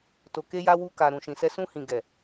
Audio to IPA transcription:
t o˨ k e˧ j a˧ w u˧ k a˨ ɾ ũ˨ ʃ ĩ˨ s ɛ˧ s ũ˧ h ĩ˨ ɡ ɛ˨

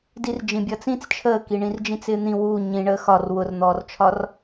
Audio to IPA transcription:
d i r d͡ʒ ĩ bʲ ʌː t͡s ĩ t͡s t͡ʃʰ əː k i ɳ ĩ r d͡ʒ ĩ t͡s ɪː n̪ ĩ w u ɲ ĩ ɳ əː x ɒ r w ʊ r n̪ ɔː r t͡ʃʰ ɒ r

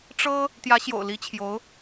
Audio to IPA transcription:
ʈ͡ʂ ɤ˥ | t̪ j ä˧˥ ɕ j o̰˨˩ ʊ̯ l i˧˥ t͡ɕʰ j o˧˥ ʊ̯

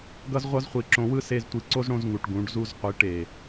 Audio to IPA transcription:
ɡ ʌ˦ z ʁʷ ʌ˦ z χʷ i˨ ǁ õ˧ w ɯ˦ s e˧ z tʷ i˧ ǀ o˦ z ɽ õ˦ z ŋ u˨ ʈ ɡ ũ˨˦ ɖ z u˦ z qʷ i˨˦ ʈ e˨

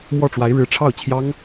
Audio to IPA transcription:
m w ɔ˥˩ ʈ͡ʂ w a˧˥ ɪ̯ ɻ ɻ̩˧˥ ʈ͡ʂʰ ɑ˥˩ ʊ̯ t͡ɕʰ j ɑ˥ ŋ

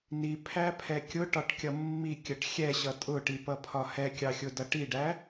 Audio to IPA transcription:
n i pʰ æ pʰ ɛ kʲ ʊ ʈ ɒ ʈ kʲ ʌ mː i kʲ ə ʈ xʲ ɛ ɕ ʌ tʼ ʊ ʈ i p ʌ pʰ ɒ h ɛ kʲ ɑ xʲ ʊ d ʌ ʈ i ɖ æ

